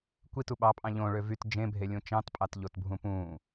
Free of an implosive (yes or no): no